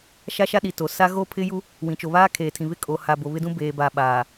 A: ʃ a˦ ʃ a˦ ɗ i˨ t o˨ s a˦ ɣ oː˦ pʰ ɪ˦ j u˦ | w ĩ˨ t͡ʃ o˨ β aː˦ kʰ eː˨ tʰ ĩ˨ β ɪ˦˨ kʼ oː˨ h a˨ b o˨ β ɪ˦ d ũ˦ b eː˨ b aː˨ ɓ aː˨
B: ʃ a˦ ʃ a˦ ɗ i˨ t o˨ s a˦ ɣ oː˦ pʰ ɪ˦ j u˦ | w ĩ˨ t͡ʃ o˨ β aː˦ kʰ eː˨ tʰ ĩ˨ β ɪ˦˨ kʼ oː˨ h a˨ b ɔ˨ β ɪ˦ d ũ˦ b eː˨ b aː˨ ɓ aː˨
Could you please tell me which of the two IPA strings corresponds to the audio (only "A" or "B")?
A